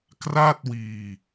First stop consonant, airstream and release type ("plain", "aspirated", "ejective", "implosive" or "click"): plain